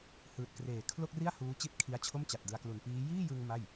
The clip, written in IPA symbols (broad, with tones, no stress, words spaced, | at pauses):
hɯː˨˩t̚kreː˨˩ kʰlo˥˩k̚ri˥˩a̯ huː˦˥t͡ɕi˥˩t̚kʰi˦˥a̯t͡ɕʰo˥˩m t͡ɕa˨˩t̚dɯ˧a̯klu˨˩n piː˦˥ jiː˥˩jɯ˧ŋ ma˥˩j